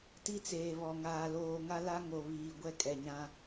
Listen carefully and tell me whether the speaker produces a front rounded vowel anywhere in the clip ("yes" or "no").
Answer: no